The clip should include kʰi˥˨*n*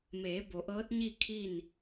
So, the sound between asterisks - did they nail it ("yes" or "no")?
yes